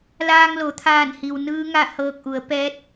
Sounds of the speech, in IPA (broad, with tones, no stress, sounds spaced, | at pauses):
l aː˧ ŋ l o˩ t̪ʰ aː˧˩ n h i˩ w n ɯː˧˥ ŋ a˥˨ h ɤː˧ k̚ ʔ u˩˧ ə̯ p ɛː˧˥ t̚